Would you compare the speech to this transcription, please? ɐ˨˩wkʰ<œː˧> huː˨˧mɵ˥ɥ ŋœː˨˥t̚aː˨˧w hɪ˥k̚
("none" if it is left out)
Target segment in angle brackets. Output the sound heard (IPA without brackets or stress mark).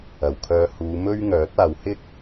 œː˧